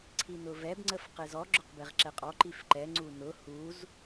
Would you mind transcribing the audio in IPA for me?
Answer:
ǀʰ i n ʊ v ɛ b ŋ͡ǀ ə f q ɪ z ɔ ɡ͡ǁ ʊ q b e ʁ ǁ ɛ qʼ ɔ ǃ i f ǃ ɛ ŋ͡ǀ u n ʊ h u z

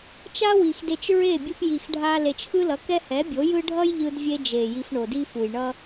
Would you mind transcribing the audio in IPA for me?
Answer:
t͡ʃ a˦ w i˨ x d e˧ t͡ʃ ɹ e˦˨ bʲ ɯ˧ p j i˨ x ɖʱ a˧ l e˨ t͡ʃ x ɯ˦ l ʌ˨˦ k ɛ˦ h ɛ˨˦ bʲ o˨˦ j ɯ˦ ɖʱ ʌ˦ j ʎ ɯ˧ d vʲ e˧ d͡ʒ e˨ j i˧ f ɳ o˨ d i˦ f u˨ j ɳ ʌ˦

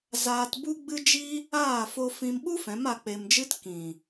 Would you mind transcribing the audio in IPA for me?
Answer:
z aː˧ t b u˦ ɡ͡b ɨ˦ d͡ʒ i˦ | aː˦˨ f o˧ f ĩ˦ m ɓ u˦ f ɛ̃˨˦ m a˧ k͡p e˧ m d͡ʒ ɨ˦ t k ĩ˨

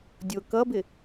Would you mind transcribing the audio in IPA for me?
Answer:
dʲ ʊ k ʌ b ɪ

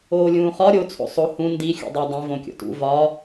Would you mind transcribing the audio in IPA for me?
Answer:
oː lʲ ũː χ ɒ ɾʲ o t͡sʰ o̰ sˤ o h ũ n d i xʲ ṵ dˤ æ dˤ ĩ v õ kʲ o̰ t ṵ v ɒ

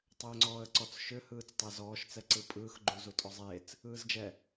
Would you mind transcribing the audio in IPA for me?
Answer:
tˤ ʏː ŋ͡ǀ ɔː ə̯ ǀ ɔ t͡s ʃ ʏ h ɯː t͡s tˤ e z ɔː ʃ t͡s ɛ ǀ ɯ pʼ ɯː x ɡ͡ǃ u z u tʼ ɔ zˤ eː t͡s | ɯː z d͡ʒ ɛ

